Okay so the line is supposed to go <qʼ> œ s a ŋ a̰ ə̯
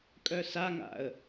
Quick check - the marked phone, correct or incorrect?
incorrect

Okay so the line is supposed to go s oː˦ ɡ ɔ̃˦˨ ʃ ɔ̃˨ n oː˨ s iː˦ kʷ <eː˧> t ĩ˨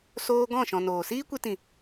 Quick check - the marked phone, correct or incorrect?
incorrect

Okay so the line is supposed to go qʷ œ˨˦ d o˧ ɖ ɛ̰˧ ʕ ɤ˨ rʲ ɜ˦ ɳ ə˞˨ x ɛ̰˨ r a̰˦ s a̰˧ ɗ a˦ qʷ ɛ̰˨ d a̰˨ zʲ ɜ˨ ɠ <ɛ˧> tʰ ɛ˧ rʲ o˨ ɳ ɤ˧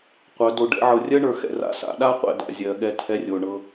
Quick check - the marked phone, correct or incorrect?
correct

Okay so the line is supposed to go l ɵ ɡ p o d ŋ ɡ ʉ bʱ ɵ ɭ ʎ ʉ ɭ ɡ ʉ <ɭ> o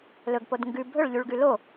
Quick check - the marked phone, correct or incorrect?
incorrect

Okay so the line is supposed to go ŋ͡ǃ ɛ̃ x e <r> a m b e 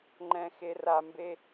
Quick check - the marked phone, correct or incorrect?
correct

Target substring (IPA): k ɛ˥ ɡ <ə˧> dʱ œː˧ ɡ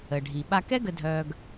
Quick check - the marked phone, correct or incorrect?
correct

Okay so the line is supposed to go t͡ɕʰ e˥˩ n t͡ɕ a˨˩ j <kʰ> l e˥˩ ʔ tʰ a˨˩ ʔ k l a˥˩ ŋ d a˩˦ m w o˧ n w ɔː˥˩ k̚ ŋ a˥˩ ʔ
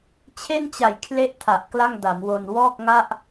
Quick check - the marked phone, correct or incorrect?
correct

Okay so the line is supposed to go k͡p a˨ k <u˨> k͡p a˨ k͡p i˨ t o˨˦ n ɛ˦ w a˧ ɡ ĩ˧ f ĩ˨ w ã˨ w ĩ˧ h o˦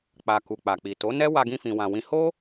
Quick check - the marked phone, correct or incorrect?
correct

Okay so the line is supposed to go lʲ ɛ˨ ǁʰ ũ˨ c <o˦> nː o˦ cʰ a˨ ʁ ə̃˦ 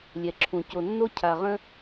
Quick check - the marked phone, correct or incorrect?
incorrect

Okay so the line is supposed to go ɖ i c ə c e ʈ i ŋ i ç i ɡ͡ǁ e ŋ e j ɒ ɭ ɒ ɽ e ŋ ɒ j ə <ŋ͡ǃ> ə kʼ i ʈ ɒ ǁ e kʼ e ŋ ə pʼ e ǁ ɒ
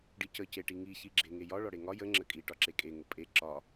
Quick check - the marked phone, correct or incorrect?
incorrect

